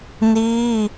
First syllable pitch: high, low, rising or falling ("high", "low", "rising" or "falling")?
high